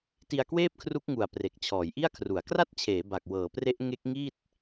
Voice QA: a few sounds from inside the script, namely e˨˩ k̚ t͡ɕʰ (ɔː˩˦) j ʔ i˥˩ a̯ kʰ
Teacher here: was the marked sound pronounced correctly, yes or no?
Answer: yes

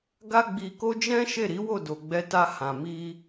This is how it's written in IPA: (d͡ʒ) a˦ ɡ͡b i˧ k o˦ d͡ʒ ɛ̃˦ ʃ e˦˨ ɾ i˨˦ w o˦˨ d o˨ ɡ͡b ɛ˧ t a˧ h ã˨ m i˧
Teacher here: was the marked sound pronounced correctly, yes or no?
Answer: no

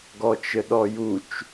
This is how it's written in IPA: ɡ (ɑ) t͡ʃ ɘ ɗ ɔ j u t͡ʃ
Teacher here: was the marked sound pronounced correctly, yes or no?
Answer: no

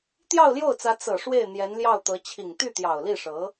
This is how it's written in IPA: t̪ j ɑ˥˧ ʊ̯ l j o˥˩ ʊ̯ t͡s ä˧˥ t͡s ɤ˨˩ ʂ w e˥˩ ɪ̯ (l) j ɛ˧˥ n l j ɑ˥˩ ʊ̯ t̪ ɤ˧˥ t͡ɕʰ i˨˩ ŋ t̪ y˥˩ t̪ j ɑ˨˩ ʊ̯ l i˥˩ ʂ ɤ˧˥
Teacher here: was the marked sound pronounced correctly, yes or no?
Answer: no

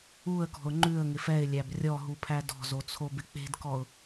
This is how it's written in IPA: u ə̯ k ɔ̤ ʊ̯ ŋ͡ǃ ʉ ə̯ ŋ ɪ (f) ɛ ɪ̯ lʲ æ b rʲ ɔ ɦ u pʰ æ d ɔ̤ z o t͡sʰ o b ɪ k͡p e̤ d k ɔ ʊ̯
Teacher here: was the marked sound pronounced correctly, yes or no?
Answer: yes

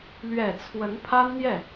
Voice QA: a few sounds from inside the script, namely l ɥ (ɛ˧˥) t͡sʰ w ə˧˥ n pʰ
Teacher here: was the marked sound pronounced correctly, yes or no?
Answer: no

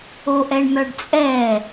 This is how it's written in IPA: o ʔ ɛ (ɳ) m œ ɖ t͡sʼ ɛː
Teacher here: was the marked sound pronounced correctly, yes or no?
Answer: yes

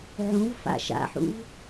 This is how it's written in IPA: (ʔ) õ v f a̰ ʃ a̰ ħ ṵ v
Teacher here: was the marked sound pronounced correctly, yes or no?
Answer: no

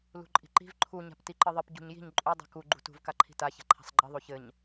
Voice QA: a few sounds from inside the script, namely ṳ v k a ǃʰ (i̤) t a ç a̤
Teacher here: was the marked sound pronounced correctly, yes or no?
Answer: yes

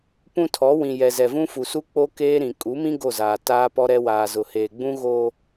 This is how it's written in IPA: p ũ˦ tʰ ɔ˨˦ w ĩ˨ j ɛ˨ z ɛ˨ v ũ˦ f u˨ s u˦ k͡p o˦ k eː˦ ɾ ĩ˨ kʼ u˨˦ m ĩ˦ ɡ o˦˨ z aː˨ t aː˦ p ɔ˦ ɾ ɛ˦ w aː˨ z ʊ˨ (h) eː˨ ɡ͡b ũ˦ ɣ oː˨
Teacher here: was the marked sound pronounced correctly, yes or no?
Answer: yes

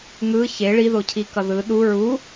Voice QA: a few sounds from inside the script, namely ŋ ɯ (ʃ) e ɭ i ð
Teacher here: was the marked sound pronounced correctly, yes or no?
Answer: no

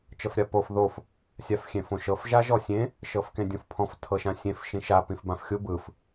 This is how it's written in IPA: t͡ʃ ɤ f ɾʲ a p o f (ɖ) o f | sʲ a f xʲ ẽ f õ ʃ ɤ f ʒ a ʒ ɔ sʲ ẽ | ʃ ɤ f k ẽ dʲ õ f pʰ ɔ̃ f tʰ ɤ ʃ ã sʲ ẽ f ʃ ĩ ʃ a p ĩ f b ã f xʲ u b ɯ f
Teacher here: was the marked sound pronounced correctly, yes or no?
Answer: no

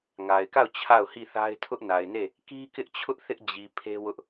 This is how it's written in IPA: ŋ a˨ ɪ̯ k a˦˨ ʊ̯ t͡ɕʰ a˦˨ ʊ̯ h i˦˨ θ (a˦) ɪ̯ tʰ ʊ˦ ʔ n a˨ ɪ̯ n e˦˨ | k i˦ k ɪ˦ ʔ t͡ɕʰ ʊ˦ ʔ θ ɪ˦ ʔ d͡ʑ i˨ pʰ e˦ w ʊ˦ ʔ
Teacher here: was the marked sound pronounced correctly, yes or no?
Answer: yes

